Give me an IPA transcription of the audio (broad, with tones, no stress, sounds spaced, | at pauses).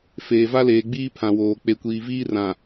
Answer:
f eː˨ v a˦ l eː˨ ɡ͡b iː˦ pʰ ã˨ w oː˨ k͡p e˨ kʷ iː˨ v iː˦ r ã˨